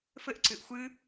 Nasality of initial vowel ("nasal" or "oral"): oral